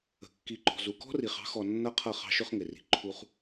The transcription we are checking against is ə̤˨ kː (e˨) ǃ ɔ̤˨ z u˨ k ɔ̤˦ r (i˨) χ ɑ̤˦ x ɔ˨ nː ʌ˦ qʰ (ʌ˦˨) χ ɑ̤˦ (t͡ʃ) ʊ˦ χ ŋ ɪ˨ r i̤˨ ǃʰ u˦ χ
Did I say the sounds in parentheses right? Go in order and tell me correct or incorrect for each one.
incorrect, correct, correct, incorrect

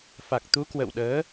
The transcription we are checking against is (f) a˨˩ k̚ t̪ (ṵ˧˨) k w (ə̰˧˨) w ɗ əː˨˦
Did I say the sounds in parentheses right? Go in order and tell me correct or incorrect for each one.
correct, incorrect, correct

